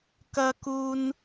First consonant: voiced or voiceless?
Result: voiceless